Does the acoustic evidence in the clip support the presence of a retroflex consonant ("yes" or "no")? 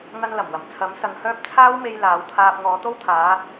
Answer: no